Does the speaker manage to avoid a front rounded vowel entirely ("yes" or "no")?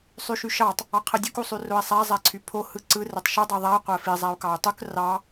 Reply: no